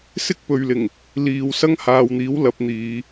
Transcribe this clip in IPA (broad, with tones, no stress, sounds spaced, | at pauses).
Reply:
s ɪ˥ k̚ p ɵ˨ ɥ l ɪ˨˩ ŋ | l iː˨ w s ɐ˥ ŋ h aː˨ w n̪ iː˨˥ w l ɐ˨˥ p̚ n̪ iː˨˧